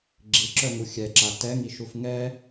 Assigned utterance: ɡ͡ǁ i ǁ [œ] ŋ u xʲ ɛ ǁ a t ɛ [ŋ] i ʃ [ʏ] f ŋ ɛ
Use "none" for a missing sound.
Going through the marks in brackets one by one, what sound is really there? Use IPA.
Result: œ, ŋ, u

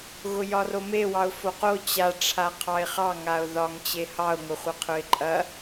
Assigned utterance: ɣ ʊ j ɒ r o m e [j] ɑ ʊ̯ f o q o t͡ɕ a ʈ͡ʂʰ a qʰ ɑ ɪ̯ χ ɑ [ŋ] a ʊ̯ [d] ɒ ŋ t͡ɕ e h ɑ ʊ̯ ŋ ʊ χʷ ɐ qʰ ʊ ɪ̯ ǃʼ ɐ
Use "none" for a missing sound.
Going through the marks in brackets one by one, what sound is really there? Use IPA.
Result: w, ŋ, ð

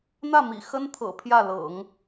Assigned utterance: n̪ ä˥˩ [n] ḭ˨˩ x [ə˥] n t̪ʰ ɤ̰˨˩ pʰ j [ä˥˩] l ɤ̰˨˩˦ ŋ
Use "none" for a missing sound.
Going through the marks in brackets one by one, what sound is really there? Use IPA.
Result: m, ə˥, ä˥˩

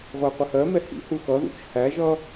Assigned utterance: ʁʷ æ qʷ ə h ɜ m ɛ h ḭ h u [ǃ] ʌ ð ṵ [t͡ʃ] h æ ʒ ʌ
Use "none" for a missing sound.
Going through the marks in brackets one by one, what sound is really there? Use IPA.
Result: x, t͡ʃ

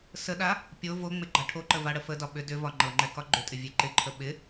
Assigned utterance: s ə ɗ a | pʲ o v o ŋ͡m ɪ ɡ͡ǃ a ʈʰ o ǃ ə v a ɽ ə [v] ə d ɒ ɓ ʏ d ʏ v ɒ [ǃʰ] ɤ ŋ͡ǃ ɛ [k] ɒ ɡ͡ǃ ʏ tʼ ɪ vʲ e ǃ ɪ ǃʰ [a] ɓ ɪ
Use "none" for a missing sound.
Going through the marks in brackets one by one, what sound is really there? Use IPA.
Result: f, ŋ͡ǃ, k, ə

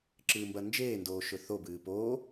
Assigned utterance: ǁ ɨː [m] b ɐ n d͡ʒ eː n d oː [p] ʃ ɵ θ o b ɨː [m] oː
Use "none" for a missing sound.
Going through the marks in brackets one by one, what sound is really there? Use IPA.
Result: m, none, p

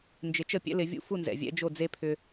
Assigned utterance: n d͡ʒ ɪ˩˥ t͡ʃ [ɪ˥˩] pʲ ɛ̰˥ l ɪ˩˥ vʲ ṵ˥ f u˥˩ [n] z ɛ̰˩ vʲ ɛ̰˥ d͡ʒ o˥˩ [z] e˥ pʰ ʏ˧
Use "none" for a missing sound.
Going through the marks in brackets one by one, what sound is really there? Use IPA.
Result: ə˥˩, n, d͡z

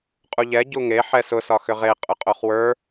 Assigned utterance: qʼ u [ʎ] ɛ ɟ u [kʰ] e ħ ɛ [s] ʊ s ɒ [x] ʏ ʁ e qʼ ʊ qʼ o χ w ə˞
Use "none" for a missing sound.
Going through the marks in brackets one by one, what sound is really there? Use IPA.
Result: ʎ, ŋ, s, x

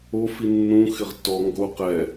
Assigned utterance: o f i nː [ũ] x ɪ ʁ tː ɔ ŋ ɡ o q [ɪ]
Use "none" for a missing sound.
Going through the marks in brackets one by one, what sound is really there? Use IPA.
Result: ũ, ɛ

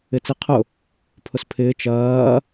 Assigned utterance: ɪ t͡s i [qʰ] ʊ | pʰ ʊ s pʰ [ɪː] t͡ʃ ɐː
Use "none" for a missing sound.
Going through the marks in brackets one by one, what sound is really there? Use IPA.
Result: qʰ, ɪː

